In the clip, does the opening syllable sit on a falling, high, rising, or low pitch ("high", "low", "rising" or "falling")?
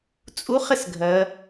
rising